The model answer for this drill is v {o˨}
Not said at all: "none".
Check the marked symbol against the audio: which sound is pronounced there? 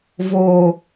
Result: o˨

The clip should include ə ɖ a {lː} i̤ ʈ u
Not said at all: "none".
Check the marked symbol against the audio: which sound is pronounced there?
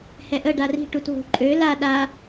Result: r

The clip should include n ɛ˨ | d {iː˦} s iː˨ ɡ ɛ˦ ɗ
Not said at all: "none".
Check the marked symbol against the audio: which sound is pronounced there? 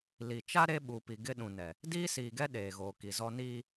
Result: iː˦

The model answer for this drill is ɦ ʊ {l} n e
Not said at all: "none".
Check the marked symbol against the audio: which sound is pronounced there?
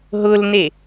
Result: l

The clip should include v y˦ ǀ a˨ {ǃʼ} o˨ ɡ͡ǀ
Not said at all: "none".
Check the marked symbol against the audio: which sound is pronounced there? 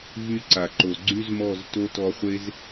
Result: ǃ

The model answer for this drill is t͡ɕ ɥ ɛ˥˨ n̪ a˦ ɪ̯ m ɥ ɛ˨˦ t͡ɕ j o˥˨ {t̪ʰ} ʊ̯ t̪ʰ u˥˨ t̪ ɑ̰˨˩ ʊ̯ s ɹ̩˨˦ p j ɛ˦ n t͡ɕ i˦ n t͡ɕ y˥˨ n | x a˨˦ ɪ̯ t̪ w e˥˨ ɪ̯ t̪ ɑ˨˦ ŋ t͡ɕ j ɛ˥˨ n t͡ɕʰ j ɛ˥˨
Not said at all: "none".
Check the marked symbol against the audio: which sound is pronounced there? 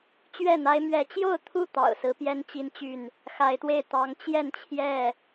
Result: none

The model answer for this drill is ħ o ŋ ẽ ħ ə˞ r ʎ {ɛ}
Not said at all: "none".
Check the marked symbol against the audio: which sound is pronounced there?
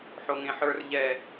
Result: ɛ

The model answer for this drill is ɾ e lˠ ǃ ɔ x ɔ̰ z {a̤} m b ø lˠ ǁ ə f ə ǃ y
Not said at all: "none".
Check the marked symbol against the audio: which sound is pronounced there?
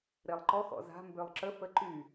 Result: a̤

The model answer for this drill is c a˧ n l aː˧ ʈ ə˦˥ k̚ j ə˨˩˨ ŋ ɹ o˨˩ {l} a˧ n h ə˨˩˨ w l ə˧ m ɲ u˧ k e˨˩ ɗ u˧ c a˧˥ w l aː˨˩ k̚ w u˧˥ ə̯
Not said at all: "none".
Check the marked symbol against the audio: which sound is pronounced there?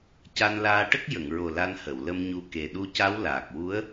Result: l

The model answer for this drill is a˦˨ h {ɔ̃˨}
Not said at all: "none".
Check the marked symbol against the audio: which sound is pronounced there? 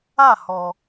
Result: ɔ˨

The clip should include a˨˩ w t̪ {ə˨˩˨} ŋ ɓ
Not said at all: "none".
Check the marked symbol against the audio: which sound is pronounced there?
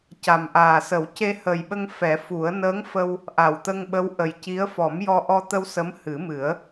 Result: ə˧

